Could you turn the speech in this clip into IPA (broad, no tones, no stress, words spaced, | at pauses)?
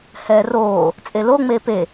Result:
hɛːroː | t͡sʼelo ŋ͡meːpe